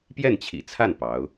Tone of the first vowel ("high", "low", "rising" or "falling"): falling